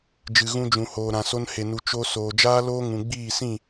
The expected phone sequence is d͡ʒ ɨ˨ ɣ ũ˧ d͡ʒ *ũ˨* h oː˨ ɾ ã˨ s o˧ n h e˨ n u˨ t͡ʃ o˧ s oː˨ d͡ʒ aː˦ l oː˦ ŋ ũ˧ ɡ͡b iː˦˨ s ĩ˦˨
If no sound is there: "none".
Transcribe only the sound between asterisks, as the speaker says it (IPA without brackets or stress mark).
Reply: ũ˨